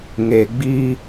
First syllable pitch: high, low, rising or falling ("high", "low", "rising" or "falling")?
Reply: low